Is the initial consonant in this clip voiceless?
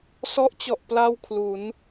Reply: yes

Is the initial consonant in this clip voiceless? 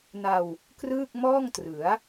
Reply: no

